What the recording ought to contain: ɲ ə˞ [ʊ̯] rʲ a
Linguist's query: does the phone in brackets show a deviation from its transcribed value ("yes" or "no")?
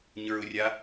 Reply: no